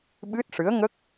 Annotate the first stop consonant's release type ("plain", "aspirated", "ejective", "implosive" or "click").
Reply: implosive